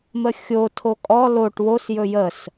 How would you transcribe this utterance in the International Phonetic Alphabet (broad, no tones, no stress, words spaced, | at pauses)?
məxʲotʰo kʼɔ loʈ wosjɵ jəs